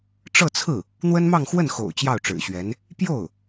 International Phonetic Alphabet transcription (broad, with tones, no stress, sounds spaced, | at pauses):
ʈ͡ʂ ɤ˥˧ t͡sʰ ɹ̩˥˩ | n̪ w ə˥ n m ɑ˥˧ ŋ x w ə˥˩ n x o̰˨˩ ʊ̯ t͡ɕ j ɑ˥˩ ʊ̯ ʈ͡ʂ ɻ̩˨˩ ɕ ɥ ɛ˧˥ n | p j o˥˩ ʊ̯